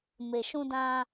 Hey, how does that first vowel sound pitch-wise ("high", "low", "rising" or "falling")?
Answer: low